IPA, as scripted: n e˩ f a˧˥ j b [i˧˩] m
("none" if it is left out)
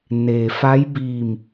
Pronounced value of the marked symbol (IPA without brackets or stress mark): i˧˩